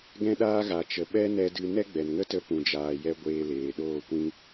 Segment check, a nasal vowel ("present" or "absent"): present